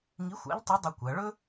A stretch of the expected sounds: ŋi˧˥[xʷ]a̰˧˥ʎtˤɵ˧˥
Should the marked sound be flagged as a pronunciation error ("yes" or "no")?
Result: no